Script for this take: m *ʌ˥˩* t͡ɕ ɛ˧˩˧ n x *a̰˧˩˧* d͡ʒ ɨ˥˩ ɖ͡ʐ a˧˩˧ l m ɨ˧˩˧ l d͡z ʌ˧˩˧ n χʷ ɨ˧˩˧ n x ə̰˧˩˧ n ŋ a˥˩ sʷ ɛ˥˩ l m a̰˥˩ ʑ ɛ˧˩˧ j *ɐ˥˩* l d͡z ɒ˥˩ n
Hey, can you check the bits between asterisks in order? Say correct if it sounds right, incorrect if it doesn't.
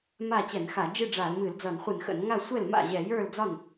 incorrect: a˥˩, incorrect: a˧˩˧, incorrect: ə˞˥˩

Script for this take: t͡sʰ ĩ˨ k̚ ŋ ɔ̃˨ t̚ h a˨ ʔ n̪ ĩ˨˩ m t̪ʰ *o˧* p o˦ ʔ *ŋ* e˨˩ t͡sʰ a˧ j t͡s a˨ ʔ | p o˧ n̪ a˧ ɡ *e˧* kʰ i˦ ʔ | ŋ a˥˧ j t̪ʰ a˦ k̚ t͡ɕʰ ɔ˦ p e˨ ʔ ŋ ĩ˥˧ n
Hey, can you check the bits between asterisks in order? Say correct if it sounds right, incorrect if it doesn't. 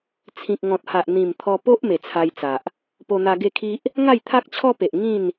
incorrect: ɔ˧, incorrect: m, incorrect: e˥˧

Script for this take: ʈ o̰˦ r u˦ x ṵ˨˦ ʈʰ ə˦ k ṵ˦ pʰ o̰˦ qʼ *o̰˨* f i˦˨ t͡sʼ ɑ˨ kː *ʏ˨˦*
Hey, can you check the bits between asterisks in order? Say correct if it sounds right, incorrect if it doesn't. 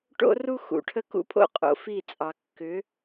correct, correct

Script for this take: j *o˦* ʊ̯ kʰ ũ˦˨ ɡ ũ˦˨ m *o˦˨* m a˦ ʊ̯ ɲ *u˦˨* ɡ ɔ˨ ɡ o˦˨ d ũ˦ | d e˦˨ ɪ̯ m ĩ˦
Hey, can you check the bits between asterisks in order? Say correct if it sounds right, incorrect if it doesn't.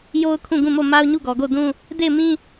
correct, correct, correct

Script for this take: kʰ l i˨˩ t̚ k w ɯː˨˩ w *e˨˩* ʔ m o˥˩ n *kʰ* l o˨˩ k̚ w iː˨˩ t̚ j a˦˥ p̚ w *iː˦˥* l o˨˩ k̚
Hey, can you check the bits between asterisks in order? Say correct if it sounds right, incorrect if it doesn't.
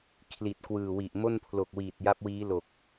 incorrect: i˨˩, incorrect: pʰ, correct

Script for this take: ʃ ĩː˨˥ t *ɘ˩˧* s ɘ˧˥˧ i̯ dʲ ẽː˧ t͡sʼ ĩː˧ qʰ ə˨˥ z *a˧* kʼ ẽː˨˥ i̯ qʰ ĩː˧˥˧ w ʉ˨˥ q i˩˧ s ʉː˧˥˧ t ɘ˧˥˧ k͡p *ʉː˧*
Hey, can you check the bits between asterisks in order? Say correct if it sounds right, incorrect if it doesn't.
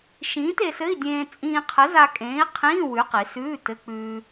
incorrect: e˩˧, correct, correct

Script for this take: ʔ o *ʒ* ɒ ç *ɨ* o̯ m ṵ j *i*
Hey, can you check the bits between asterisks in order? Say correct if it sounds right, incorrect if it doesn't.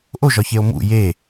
correct, incorrect: e, incorrect: e

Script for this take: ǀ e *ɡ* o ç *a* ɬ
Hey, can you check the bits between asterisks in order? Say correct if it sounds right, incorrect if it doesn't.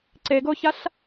correct, correct

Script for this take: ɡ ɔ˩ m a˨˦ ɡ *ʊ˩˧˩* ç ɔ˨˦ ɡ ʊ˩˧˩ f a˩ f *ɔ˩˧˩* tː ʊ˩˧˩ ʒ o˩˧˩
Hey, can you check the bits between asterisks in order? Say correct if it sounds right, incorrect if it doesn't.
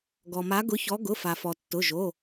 incorrect: ʊ˨˦, incorrect: ɔ˩

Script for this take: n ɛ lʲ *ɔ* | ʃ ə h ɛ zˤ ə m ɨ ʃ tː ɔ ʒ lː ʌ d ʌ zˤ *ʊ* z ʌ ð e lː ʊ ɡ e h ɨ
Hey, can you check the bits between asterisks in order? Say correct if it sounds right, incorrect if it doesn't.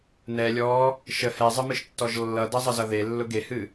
correct, incorrect: ə

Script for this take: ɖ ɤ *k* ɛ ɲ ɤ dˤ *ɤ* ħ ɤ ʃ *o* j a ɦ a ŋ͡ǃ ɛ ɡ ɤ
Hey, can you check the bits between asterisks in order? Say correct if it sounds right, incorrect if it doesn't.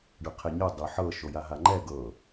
incorrect: qʰ, correct, correct

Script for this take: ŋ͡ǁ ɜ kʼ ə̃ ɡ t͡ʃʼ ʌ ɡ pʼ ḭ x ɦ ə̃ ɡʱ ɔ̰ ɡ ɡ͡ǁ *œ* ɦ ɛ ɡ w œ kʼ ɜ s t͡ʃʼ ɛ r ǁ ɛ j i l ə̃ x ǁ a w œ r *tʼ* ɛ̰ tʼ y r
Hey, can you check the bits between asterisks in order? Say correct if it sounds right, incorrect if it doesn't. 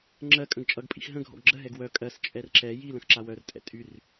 incorrect: ə, correct

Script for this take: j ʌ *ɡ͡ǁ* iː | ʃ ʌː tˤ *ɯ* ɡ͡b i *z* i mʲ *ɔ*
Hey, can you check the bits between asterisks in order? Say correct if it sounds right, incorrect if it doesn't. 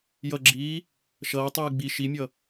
correct, incorrect: ɯː, incorrect: ʃ, incorrect: ʌ

